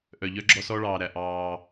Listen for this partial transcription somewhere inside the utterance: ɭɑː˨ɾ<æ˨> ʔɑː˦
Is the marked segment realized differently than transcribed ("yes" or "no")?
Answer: no